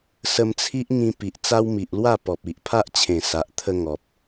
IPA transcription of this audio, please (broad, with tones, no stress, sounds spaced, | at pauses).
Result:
s ə˧ m t͡sʰ i˦ ʔ ŋ ĩ˧ p i˨ ʔ t͡s a˦ w m i˨ ʔ l w a˥˧ p ɔ˨ p̚ i˨ ʔ pʰ a˦ ʔ t͡ɕʰ ẽ˨˩ s a˨ ʔ t̪ʰ ə˧ ŋ ɔ˨ p̚